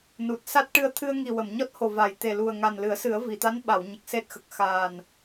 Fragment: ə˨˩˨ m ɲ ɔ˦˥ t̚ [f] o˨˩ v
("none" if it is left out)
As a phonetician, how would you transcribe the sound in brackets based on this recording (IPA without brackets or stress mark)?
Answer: h